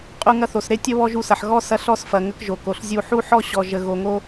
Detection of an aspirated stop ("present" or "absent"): absent